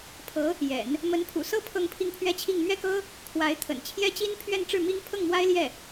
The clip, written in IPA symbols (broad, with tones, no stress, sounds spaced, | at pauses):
pʰ ɤ˧˥ | j ɛ̰˨˩˦ n | m ə˧˥ n pʰ ṵ˨˩ s ɤ˥ pʰ ɤ˥˧ ŋ pʰ i˥˩ ŋ pʰ ɥ ɛ˥ t͡ɕʰ i˥˧ ŋ m ɥ ɛ˥˩ k ɤ˥ | kʰ w a˧˥ ɪ̯ t̪ʰ ə̰˨˩ n t͡ɕʰ j ɛ˥ t͡ɕ i˥ n pʰ ɥ ɛ˥˧ n ʈ͡ʂ ɻ̩˥˩ m i˥ ŋ pʰ ɤ˥˩ ŋ m w a˥ ɪ̯ l j ɛ˥˩